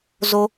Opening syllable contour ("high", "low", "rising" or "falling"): high